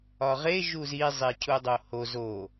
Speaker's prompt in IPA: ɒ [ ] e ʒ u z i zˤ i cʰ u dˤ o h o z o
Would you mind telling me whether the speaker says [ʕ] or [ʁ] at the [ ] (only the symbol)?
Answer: ʁ